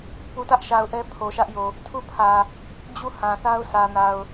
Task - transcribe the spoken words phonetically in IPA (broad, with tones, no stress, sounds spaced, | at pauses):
p u˨ t ä˦ ʔ ʃ a˨ ʊ̯ ʔ ɛ˦ pʰ o˨ ʃ ä˦ ʔ j o˨ | tʰ u˦˨ pʰ ä˨ | d͡ʑ u˦˨ h ã˨ θ a˦ ʊ̯ sʰ ä˨ n a˨ ʊ̯